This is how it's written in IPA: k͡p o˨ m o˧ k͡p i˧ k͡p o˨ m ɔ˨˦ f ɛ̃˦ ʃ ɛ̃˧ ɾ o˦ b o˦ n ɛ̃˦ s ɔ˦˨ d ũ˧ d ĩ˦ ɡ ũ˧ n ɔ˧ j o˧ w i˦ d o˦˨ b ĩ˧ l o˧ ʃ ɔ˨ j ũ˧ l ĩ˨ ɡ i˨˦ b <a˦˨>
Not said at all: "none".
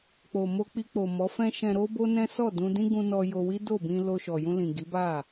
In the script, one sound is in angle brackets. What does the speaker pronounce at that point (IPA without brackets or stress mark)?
a˦˨